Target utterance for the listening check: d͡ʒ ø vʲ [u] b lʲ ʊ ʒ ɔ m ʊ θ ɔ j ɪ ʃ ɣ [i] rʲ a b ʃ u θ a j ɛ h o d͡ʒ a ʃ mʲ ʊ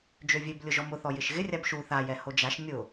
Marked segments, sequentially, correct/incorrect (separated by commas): incorrect, incorrect